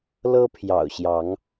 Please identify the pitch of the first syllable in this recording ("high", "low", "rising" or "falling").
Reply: high